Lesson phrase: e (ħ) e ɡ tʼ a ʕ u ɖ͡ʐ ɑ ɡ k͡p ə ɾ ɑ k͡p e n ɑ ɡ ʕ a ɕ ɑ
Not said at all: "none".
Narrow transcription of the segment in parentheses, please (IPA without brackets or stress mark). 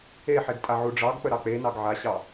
ħ